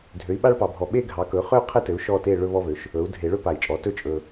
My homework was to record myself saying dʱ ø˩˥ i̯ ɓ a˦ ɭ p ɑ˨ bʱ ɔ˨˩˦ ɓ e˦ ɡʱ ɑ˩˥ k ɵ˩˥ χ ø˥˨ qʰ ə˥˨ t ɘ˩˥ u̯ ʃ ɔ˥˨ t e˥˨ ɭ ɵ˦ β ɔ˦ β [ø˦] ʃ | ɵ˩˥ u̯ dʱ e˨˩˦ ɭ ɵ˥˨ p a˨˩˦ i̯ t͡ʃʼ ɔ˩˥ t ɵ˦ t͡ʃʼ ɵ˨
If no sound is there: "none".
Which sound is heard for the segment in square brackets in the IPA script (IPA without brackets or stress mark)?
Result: ø˩˥